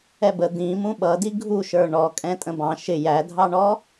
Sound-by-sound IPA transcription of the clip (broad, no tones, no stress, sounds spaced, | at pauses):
ɛ b ə d̪ ĩ m ũ ɓ ʌ d i ɡʱ u ʃ ə˞ ɳ ɔ kʼ ɛ̃ tʼ ə̃ b ɑ̃ ʃ ɪ j æ dʱ ɑ ɳ ɔ